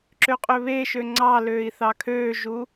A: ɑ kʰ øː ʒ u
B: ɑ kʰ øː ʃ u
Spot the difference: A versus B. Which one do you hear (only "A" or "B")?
A